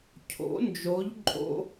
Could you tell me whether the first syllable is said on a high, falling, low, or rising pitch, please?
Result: rising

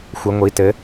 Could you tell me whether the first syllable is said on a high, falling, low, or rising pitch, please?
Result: rising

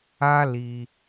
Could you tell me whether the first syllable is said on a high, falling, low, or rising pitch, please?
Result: high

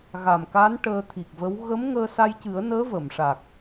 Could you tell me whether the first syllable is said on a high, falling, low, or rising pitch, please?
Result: low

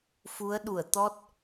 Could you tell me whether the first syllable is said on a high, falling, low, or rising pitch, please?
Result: rising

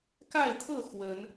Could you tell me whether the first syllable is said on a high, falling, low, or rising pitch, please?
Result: falling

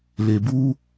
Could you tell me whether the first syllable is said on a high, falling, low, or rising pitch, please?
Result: low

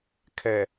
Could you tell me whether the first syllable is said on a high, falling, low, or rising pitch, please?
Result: low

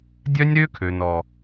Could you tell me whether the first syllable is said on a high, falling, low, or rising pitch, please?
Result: high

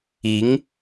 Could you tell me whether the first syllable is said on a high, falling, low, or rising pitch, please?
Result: rising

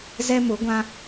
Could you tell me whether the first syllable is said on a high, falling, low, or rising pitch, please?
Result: high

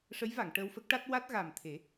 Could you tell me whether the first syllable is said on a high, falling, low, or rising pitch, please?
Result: rising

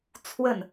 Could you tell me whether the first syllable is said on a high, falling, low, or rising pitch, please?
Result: falling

